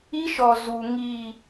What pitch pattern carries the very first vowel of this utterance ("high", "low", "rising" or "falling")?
high